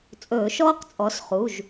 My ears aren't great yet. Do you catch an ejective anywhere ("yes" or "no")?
yes